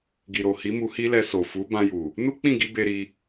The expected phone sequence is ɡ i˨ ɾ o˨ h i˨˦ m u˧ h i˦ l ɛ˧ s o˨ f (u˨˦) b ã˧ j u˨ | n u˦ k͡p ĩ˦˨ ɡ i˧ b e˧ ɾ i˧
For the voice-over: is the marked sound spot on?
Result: yes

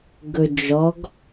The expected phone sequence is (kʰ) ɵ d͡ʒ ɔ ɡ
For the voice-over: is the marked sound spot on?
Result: no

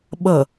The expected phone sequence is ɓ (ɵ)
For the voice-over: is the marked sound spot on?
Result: no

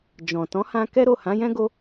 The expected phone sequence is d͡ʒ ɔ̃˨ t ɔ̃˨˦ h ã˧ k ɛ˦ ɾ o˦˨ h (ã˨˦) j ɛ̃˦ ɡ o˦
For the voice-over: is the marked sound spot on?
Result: yes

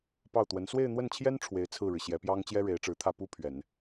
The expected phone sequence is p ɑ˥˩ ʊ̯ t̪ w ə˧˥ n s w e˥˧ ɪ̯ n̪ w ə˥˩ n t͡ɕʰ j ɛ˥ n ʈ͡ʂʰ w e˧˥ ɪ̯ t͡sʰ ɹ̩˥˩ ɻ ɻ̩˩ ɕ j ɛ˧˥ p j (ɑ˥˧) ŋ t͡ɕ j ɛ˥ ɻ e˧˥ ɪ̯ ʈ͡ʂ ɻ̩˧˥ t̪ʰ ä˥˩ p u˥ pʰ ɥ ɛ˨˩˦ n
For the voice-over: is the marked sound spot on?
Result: no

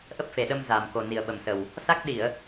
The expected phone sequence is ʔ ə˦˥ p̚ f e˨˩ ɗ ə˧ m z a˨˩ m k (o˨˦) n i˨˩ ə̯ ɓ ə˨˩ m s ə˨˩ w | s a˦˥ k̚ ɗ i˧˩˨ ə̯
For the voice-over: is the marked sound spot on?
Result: no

